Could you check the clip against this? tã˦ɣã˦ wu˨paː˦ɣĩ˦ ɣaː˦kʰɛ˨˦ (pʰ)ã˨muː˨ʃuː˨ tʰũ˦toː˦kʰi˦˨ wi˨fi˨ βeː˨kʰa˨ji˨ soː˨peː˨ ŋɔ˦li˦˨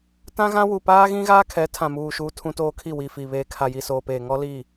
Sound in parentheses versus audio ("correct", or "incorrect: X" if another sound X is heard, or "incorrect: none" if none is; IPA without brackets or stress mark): incorrect: tʰ